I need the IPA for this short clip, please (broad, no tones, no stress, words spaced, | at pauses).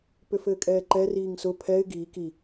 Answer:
pʏfɘːkʼɛːǃɛ riːŋsʊ pʰɛɪ̯ ɡiː ki